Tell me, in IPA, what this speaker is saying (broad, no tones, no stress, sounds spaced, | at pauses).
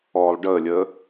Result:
ɔː lˠ ɖ əː lʲ əː